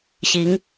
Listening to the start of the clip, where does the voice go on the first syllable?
rising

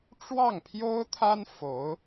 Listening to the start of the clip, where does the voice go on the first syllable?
falling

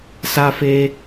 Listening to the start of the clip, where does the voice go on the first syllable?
high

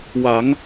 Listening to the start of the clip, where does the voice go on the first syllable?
rising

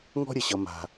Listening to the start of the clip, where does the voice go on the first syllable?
high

